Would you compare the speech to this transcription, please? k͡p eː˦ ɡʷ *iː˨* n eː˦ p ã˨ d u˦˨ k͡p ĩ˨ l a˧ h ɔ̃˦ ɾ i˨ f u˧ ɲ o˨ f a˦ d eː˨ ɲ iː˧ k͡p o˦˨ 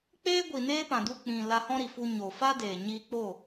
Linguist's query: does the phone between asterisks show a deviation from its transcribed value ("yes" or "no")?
yes